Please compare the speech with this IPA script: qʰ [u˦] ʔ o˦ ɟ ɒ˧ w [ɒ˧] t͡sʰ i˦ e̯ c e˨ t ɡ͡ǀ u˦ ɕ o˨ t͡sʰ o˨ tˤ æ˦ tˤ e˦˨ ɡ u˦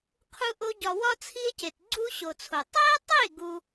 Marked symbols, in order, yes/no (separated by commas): yes, no